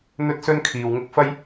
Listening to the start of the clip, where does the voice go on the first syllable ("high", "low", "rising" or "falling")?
high